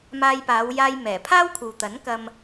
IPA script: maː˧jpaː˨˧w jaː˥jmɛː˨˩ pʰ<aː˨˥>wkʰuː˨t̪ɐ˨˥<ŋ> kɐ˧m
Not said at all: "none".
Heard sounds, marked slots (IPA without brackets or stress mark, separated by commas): aː˥, n